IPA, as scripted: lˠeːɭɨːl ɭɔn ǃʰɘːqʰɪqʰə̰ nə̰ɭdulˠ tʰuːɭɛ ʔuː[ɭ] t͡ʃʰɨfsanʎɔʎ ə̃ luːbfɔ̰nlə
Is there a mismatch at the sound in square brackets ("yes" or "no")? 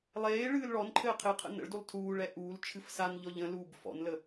yes